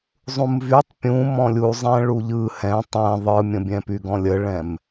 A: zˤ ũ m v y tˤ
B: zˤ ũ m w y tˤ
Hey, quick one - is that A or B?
A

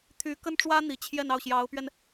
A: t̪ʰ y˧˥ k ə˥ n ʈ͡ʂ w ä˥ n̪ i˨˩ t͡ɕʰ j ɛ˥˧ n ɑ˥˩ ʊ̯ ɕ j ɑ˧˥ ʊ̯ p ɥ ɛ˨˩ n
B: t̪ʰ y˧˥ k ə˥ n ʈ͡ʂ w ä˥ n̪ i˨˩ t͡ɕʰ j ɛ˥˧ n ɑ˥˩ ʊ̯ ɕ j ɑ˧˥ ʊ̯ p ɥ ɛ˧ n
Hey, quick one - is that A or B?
B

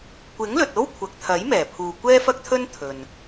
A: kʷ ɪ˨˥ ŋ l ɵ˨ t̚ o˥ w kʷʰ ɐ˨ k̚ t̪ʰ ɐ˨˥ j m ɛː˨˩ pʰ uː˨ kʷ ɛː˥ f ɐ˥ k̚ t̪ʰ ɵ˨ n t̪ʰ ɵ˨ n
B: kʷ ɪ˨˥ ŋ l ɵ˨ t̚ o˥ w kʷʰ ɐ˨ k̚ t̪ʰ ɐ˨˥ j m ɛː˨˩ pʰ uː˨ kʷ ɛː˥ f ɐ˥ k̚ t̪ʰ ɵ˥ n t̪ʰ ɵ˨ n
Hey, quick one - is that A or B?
B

